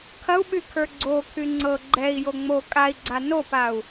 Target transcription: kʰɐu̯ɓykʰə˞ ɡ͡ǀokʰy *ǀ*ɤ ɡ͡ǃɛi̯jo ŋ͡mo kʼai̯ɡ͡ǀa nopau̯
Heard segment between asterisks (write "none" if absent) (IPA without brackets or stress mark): ŋ͡ǀ